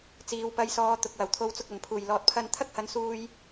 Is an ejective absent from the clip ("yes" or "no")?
yes